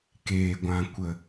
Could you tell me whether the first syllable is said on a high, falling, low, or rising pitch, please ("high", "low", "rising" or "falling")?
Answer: low